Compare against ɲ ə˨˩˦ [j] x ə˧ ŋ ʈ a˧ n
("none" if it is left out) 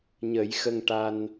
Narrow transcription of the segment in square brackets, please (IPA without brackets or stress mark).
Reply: j